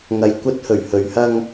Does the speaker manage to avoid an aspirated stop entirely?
yes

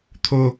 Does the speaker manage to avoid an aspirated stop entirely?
no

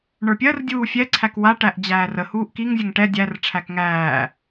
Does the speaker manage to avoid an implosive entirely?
yes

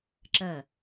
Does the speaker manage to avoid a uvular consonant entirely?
yes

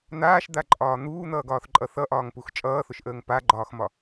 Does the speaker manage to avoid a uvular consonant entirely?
yes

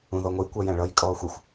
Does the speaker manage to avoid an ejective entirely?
no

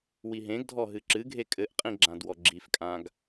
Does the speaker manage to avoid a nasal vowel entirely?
no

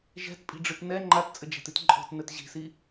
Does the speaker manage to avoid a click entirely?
no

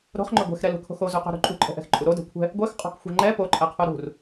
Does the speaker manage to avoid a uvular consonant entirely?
no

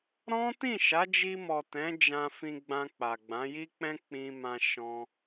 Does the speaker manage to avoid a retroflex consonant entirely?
yes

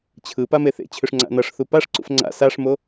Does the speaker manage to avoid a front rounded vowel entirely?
no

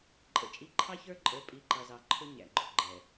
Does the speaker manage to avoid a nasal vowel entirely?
yes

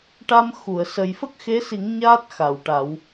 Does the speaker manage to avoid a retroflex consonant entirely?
no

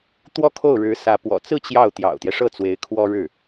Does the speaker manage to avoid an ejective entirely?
yes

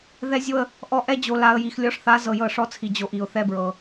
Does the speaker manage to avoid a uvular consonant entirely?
yes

